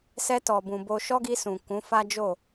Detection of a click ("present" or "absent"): absent